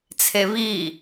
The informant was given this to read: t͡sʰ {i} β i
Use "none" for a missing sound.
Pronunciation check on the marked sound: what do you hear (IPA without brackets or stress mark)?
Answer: e